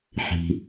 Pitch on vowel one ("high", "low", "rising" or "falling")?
low